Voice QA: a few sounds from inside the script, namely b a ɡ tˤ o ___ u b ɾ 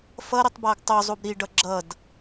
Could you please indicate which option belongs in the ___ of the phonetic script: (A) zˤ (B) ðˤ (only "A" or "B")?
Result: A